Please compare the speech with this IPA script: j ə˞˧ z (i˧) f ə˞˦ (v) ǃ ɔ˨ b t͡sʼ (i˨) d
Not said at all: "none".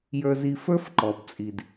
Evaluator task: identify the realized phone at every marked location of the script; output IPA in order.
i˧, f, i˨

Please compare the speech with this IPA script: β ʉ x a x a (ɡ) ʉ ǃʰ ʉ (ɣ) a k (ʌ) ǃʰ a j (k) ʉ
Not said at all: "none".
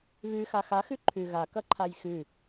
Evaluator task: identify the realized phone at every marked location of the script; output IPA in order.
x, ɣ, ʌ, x

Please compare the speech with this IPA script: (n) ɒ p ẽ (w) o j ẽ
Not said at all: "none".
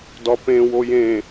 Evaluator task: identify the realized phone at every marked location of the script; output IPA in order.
d, w

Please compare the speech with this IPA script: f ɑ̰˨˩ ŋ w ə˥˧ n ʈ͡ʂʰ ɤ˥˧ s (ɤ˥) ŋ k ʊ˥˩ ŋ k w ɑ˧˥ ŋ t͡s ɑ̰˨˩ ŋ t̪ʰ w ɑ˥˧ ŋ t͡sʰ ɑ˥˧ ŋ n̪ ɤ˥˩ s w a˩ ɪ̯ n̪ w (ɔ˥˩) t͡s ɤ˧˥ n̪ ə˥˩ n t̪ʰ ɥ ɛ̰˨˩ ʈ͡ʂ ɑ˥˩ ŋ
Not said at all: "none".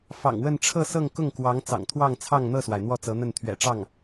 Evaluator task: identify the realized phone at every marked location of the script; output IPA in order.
ɤ˥˧, ɔ˥˩

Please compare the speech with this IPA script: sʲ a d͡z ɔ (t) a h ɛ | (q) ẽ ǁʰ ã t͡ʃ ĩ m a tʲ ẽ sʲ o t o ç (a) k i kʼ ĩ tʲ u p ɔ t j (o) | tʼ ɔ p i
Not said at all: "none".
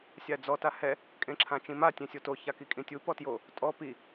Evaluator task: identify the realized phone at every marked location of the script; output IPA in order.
t, kʼ, a, o

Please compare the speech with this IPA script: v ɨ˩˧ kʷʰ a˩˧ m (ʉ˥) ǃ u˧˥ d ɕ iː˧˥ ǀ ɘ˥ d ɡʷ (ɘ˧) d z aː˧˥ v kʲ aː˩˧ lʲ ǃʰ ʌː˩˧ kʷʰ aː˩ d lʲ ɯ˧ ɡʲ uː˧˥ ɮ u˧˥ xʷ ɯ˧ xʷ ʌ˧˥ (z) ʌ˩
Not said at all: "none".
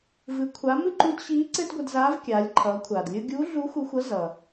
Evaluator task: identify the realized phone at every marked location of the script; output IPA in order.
ɨ˥, ɘ˧, z

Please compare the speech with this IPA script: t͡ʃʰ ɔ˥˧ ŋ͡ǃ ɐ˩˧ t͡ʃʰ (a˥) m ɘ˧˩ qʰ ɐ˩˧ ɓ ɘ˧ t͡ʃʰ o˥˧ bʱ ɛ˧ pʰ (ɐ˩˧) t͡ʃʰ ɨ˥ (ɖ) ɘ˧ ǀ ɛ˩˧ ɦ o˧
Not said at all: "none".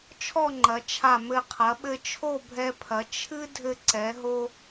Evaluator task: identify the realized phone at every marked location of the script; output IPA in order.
a˧˩, ɐ˩˧, dʱ

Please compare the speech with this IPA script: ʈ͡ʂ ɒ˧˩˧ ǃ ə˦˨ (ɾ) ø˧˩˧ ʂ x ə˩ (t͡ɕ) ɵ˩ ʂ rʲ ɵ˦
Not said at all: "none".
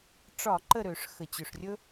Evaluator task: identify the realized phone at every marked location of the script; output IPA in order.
ɾ, t͡ɕ

